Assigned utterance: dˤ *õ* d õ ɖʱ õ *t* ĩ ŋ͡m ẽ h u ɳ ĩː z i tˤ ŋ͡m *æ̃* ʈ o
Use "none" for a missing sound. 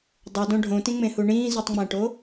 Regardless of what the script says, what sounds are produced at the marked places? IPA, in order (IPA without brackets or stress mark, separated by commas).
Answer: o, t, æ̃